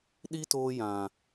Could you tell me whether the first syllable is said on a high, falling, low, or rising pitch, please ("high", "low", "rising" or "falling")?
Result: high